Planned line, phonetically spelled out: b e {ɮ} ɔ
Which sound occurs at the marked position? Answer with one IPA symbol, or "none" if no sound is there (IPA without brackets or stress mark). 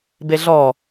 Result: ɮ